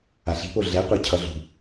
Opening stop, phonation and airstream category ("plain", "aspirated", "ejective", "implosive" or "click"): plain